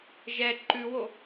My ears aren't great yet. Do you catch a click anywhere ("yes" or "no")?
yes